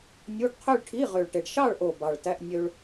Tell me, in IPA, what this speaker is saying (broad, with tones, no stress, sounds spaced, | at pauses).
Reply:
nʲ u˧˥˧ ɖ qʰ ø˥˧ ɭ ʈʰ i˧˥˧ ʁ ø˨˩ ɭ ʈ e˨˩ ɖ ʃ ɑ˥˧ ɭ ʔ o˨˩ b ɑ˨˩ ɭ t æ˧˥˧ ʔ nʲ ø˧ ɭ